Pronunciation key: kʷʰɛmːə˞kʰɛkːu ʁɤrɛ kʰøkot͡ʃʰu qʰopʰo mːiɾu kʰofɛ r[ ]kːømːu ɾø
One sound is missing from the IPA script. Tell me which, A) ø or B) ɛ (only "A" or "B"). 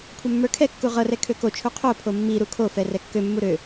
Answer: B